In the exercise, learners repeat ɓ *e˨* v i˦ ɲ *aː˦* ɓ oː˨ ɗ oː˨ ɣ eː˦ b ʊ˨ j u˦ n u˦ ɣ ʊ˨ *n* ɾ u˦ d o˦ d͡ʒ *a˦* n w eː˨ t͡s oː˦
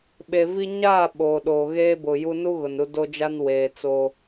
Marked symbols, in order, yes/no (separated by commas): yes, no, yes, yes